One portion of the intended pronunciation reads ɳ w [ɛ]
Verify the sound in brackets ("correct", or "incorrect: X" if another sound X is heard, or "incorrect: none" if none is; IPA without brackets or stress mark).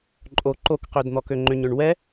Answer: correct